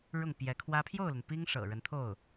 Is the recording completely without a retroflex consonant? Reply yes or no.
no